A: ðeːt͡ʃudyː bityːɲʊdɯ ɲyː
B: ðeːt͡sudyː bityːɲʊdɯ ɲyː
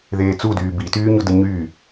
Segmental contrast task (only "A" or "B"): B